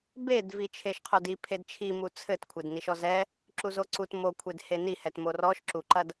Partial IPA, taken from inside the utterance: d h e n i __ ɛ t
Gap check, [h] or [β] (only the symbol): h